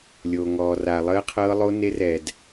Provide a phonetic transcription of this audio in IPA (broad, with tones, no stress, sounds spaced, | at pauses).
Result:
lʲ oː˧ ŋ ɔː˧ r aː˧ lˠ əː˥ qʰ ɤː˥ lˠ o˥ n e˥ r ɛ˧ d